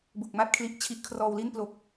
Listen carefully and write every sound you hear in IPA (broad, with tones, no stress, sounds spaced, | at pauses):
b u˨˩ k̚ m a˥˩ t̚ kʰ l i˦˥ ʔ t͡ɕʰ i˦˥ ʔ kʰ r ɔː˧ w l i˥˩ n p l o˦˥ k̚